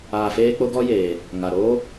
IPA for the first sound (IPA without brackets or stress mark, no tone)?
aː